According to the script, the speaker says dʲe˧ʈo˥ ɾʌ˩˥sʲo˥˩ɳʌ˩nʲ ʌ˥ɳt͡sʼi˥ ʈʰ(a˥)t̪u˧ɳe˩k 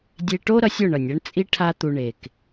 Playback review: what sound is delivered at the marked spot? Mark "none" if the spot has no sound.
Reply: a˥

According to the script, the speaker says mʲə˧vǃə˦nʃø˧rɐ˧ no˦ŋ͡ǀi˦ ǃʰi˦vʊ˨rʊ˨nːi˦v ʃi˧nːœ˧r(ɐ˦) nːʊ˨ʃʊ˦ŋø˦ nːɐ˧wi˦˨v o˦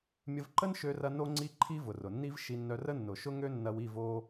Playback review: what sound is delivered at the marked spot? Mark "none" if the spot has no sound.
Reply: ə˦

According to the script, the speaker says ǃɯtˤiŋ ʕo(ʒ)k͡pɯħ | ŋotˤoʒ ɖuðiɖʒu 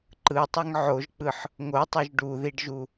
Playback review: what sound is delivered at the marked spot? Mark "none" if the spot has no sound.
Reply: ʒ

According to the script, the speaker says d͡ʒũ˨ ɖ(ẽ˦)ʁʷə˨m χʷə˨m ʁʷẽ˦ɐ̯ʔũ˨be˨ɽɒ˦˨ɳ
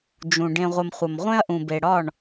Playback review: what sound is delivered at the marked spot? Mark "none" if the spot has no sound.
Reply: ẽ˨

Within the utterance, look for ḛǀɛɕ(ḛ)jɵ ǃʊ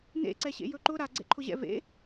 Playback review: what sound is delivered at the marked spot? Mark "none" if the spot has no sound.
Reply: ḛ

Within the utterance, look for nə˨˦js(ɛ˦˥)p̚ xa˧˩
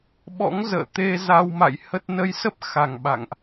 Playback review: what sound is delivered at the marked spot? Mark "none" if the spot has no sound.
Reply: ə˦˥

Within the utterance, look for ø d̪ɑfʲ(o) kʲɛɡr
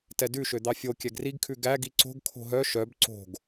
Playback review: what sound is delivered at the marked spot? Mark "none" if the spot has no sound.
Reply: o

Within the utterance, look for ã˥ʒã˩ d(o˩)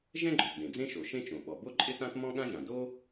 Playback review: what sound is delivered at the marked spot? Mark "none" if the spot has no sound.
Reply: o˥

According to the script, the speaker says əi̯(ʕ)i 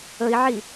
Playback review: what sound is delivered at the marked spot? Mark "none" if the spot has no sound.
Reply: ʕ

